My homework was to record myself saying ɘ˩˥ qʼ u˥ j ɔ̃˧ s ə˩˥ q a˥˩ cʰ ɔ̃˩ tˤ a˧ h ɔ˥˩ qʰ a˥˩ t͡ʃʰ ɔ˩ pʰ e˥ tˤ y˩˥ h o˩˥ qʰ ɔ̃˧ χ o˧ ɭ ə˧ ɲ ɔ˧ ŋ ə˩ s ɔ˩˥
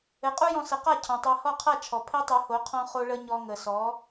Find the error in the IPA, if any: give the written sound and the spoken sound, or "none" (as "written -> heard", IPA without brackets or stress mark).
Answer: y˩˥ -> u˩˥